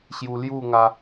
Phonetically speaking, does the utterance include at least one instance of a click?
no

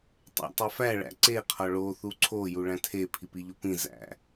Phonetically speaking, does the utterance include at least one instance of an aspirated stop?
yes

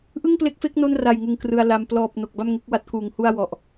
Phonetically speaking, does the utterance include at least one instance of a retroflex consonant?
no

